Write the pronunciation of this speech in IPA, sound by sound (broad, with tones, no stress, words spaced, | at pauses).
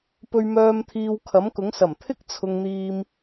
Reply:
pɵ˧ɥmœː˧m t̪ʰiː˧wkʰɐ˨˥mkʊ˨˥ŋ sɐ˨˩m t̪ʰɪ˥k̚t͡sʰʊ˨ŋn̪iː˨m